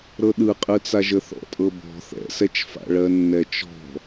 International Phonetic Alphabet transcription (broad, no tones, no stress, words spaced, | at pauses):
ɾɤɗɯqʼɯt͡sa ʒəθɔ̰tʼɤbɔ̤ θɛ̰sɛt͡ʃfa̰ ɭɜnːɛt͡ʃɔ̤